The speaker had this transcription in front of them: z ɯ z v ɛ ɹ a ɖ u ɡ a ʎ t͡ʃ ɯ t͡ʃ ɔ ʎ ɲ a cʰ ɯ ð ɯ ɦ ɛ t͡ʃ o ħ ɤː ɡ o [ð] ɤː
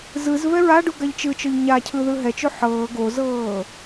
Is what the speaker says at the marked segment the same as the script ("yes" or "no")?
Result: no